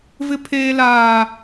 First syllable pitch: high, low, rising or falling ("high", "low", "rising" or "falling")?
high